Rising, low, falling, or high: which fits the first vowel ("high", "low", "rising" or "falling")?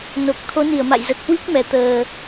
low